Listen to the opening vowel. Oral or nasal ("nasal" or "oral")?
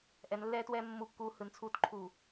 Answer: oral